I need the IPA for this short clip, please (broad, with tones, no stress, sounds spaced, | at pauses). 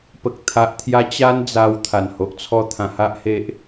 p ə˨ k̚ t̪ʰ a˨ ʔ t̪ʰ j a˧ t͡ɕ a˦ n d͡z a˧ w t̪ʰ a˨˩ n h o˨ ʔ t͡sʰ ɔ˧ t̪ʰ ã˧ h a˦ ʔ h e˦ ʔ